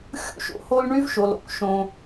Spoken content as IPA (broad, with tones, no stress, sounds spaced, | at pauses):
xʲ ṵ˥ ʃ o̰˩ h o˥ l ɳ y˥ v ʃ o˩ l o̰˥ k ʃ õ˩